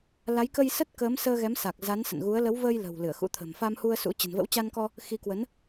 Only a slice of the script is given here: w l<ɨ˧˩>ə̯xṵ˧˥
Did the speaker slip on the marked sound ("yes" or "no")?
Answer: no